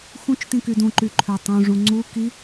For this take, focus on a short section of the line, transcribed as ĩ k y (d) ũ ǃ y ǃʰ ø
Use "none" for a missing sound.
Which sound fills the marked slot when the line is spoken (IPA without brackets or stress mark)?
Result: d